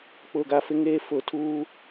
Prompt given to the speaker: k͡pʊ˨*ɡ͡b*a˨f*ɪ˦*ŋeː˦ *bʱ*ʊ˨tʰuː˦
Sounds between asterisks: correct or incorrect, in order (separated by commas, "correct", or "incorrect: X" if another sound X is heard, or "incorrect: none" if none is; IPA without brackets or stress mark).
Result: incorrect: ɡ, correct, incorrect: f